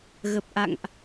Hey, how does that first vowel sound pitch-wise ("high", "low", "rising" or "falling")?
low